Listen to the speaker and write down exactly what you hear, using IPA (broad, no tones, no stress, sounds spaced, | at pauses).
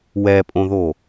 w ɛ pʼ õ ð o